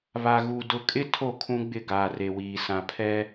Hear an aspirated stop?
yes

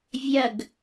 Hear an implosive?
no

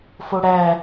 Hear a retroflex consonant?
yes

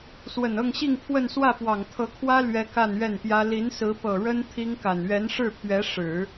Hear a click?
no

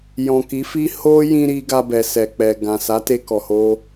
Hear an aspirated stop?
no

